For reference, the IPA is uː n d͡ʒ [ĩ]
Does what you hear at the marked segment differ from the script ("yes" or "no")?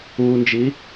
yes